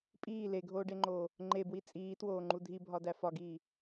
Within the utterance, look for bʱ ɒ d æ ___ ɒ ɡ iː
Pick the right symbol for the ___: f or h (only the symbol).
f